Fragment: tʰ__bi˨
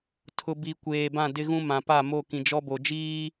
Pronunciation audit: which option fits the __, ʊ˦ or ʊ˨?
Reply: ʊ˨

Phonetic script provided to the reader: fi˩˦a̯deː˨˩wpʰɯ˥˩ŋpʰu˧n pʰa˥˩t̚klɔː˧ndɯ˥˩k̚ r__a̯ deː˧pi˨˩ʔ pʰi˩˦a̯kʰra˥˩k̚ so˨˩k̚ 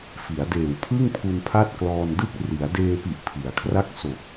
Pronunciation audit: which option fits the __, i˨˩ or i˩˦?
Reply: i˩˦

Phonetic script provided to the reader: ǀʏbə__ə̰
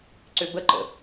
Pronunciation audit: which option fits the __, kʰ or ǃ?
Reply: ǃ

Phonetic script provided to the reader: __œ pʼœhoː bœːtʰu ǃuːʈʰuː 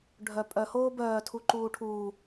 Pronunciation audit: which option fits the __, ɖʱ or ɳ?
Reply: ɖʱ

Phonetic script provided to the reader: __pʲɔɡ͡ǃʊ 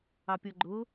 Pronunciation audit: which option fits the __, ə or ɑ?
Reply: ɑ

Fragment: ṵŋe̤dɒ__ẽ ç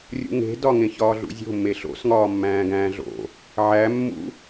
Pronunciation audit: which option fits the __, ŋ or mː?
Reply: ŋ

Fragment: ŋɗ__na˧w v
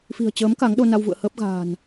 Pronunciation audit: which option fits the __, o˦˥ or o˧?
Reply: o˧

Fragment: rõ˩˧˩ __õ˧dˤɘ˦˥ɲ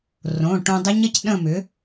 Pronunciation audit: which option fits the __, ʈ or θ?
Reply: ʈ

